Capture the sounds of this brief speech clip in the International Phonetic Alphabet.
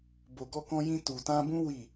bo˨ɡɔ˧kɔ̃˧jĩ˧ tu˨tã˧bũ˦ wi˦˨

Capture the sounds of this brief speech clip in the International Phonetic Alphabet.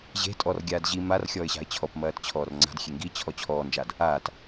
ʑe̤ tʼɔrɡʲaːd ʑi marxʲɔːɪ̯ɕa̤ɪ̯ t͡ɕʰɔpmɐːtt͡ɕʰɔːr ŋ͡ǀa̤dxʲe ŋɡit͡ɕʰɔ t͡ɕʰɔːnd͡ʒad | aːt

